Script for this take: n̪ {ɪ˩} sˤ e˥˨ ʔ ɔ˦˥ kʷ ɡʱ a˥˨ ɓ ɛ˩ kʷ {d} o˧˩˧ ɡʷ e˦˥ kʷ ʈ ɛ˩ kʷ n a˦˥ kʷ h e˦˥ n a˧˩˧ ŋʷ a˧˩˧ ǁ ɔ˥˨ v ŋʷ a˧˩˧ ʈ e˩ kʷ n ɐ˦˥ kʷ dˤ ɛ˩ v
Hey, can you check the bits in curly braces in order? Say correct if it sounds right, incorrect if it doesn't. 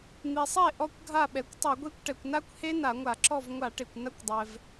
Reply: incorrect: i˩, incorrect: tˤ

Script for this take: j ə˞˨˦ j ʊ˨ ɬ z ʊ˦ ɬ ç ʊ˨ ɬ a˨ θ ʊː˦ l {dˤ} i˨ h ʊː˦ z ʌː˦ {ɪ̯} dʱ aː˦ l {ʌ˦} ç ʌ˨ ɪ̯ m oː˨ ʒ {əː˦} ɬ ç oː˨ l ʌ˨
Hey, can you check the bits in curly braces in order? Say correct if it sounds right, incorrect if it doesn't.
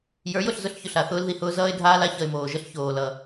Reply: incorrect: ð, correct, incorrect: a˦, incorrect: ə˦

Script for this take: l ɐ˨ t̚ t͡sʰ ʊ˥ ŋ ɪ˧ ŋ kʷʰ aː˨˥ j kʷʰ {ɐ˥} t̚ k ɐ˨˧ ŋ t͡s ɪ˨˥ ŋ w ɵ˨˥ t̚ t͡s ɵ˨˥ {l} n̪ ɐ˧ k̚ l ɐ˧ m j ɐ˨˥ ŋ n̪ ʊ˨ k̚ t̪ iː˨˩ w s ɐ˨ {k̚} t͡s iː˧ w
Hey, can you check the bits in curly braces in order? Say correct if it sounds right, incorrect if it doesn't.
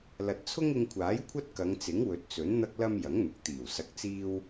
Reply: correct, incorrect: n, correct

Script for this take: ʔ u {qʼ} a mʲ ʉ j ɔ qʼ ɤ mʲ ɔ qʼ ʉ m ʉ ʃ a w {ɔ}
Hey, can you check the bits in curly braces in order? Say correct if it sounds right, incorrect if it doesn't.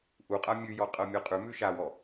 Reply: correct, correct

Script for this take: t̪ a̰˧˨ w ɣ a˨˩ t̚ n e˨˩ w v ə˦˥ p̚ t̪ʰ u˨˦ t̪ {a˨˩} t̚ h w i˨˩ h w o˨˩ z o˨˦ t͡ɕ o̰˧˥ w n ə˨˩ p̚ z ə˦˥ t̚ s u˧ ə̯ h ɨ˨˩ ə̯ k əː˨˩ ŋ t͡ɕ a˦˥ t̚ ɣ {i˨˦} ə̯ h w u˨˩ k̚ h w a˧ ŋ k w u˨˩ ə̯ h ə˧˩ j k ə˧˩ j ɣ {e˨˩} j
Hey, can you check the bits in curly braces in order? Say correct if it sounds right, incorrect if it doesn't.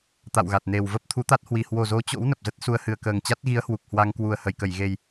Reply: incorrect: a˦˥, correct, correct

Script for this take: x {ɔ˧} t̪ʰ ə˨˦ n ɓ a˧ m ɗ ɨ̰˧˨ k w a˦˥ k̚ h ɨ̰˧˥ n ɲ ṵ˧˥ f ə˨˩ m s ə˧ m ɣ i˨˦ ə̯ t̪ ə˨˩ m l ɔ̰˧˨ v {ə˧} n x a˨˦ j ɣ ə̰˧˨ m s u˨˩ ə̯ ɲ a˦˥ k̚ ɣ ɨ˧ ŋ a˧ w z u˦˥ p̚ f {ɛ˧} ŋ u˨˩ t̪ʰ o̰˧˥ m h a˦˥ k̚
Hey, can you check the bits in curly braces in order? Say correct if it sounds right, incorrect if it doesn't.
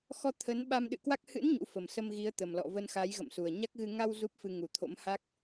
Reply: correct, correct, incorrect: ɨ˧

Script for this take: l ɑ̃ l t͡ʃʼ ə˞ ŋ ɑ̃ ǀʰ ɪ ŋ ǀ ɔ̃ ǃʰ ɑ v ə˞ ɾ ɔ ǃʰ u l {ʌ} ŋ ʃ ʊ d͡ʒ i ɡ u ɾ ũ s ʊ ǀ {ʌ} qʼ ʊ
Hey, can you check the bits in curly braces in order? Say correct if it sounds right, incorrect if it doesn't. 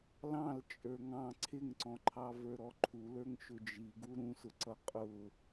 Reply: incorrect: ə˞, correct

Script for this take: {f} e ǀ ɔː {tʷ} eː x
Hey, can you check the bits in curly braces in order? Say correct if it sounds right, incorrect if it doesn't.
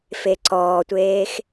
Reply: correct, correct

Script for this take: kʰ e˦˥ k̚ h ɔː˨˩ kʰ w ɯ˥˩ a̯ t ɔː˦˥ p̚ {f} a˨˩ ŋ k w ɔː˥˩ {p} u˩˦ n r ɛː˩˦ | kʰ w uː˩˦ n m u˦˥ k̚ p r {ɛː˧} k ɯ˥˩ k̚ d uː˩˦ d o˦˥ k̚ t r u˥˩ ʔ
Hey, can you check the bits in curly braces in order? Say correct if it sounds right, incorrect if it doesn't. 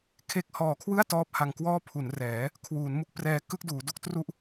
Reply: incorrect: h, incorrect: pʰ, correct

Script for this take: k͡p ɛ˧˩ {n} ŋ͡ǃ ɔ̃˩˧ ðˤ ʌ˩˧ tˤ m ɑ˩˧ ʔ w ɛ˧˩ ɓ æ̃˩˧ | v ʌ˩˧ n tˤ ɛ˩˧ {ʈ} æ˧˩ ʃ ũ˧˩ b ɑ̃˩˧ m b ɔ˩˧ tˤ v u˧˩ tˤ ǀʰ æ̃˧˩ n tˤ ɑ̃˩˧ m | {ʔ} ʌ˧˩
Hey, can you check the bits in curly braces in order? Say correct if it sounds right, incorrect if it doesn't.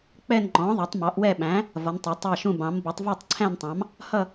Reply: correct, incorrect: tˤ, incorrect: h

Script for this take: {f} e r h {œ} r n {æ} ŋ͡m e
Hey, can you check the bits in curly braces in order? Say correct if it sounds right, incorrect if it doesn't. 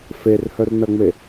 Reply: correct, correct, incorrect: ɐ

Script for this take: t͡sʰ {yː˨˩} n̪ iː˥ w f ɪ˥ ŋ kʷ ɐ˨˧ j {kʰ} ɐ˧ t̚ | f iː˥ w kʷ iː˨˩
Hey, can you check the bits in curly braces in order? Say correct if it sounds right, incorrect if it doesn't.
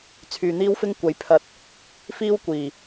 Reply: incorrect: yː˨, incorrect: pʰ

